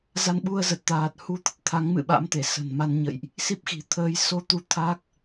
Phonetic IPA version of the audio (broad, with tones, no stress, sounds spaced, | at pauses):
z a˧ n ɓ u˧ ə̯ z ə˨˩ t̚ t̪ aː˨˩ t̚ h u˧ t̪ ə˦˥ t̚ t̪ʰ a˨˦ ŋ m ɨ̰˧˨ ɓ a̰˧˥ m t̪ e˧˩ s ə̤˨˩ n m a˧ n ɲ ə̰˧˨ j ʔ | s i˦˥ p̚ x i̤˨˩ t̪ʰ əː˨˦ j s o˧ t̪ u˧ t̪ʰ a˦˥ k̚